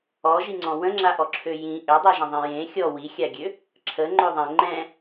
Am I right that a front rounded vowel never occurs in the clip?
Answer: no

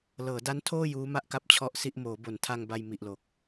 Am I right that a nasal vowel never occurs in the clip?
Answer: yes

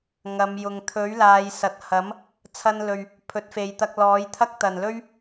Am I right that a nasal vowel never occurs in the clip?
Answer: yes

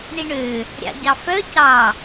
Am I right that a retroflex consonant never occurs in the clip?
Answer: no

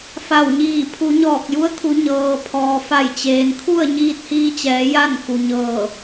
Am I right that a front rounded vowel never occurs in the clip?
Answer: yes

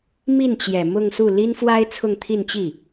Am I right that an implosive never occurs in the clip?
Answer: yes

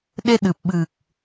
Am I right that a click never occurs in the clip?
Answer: yes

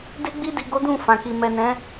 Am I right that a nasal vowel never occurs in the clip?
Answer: no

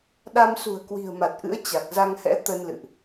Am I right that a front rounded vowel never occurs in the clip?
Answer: yes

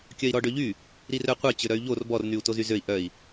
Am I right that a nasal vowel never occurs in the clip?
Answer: yes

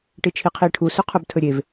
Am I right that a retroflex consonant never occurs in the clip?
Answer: no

